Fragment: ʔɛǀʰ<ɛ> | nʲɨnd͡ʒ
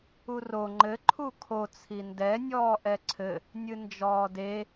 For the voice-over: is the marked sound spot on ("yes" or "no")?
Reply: no